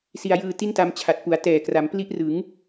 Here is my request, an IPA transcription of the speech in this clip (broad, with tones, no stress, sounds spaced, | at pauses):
s i˧ a̯ j ɯː˧ t i˥˩ n t a˧ m t͡ɕʰ a˨˩ t̚ p u˩˦ a̯ t ɛː˨˩ k r a˩˦ m p l i˦˥ ʔ r ɯ˩˦ ŋ